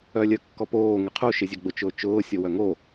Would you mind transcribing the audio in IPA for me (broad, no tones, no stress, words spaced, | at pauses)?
œlʲœkːɔpoː ŋɪqʰu ʃɪzʲœɡ͡bʊ t͡ʃʊːt͡ʃʊː sʲowœŋo